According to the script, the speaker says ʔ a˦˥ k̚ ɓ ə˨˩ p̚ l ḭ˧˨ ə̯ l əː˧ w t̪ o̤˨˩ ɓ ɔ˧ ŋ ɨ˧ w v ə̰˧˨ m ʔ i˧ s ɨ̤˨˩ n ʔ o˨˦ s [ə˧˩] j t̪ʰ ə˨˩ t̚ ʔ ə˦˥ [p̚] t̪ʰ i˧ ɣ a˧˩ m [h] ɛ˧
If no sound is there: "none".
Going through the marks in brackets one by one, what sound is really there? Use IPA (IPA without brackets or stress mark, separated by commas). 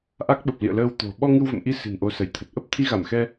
ə˧˩, p̚, x